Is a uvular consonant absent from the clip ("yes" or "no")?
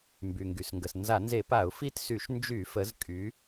yes